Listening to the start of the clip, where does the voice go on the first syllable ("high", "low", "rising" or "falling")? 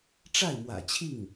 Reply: falling